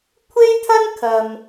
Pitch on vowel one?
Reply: high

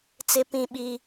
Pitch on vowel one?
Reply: high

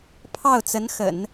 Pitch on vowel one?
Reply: falling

